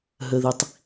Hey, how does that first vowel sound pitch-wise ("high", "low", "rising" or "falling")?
low